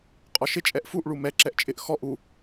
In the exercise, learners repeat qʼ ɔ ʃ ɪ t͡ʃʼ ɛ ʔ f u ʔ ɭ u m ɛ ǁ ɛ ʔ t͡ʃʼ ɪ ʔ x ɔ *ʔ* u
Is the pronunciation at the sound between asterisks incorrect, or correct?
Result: correct